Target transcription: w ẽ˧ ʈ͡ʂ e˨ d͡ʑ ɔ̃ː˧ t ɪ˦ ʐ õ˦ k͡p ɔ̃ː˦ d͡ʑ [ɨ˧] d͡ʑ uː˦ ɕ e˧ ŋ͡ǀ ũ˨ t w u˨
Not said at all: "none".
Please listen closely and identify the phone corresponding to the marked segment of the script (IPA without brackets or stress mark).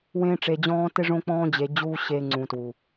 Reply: e˧